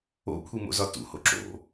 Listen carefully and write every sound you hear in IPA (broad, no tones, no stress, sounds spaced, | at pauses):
o̰ kʷʰ i m o̰ z ɒ t ṵ h o̰ ǁ o̰